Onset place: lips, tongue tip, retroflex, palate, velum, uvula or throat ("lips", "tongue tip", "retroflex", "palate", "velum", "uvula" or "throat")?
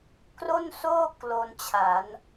velum